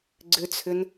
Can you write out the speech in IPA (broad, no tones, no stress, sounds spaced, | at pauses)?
ɡ͡ǀ ʏ t͡sʰ ʏ n